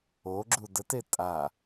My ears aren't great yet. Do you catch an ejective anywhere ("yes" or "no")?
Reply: yes